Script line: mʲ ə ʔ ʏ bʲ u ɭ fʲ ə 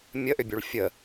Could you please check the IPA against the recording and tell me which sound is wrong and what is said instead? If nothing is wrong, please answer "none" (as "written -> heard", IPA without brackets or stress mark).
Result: none